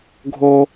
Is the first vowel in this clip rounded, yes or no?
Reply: yes